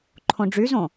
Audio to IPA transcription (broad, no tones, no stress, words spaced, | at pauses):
ǃʰõɖ͡ʐyzõ